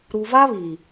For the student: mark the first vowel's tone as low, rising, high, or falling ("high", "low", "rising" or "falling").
low